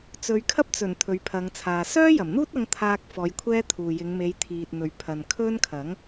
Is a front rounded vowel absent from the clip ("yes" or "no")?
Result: no